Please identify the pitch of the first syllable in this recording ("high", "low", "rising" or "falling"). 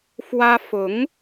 high